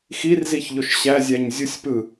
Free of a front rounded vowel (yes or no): yes